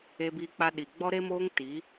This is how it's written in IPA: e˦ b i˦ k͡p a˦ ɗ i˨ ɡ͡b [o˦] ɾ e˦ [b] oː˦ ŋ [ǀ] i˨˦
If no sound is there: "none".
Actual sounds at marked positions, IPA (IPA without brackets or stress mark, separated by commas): ɔ˦, m, t